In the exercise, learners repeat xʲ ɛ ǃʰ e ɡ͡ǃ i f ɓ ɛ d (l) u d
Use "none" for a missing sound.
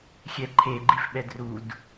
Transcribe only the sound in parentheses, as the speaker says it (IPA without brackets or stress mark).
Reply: r